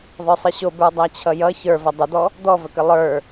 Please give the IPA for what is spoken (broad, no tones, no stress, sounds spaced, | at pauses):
ðˤ ə˞ sˤ i ɕ o b ə˞ dˤ æ t͡ɕʰ ʌ j ʌ ç ə˞ v ʌ dˤ ə d̪ ɔ | d̪ ɔ v ə k ə lˠ ə˞